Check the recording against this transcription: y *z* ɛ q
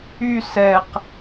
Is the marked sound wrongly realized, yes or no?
yes